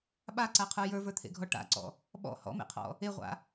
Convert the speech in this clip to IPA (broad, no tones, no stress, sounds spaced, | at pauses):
ɓ a ǀ a qʰ ə˞ j ə˞ v ə˞ t̪ʰ ḛ ɡʱ ɔ ʈ a̰ ǀ ɔ̰ | ɓ ɔ̰ h ɔ̰ m ḛ qʰ ɔ̰ | e ʁʷ a̰